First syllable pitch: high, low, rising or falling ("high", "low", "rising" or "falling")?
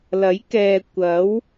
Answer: rising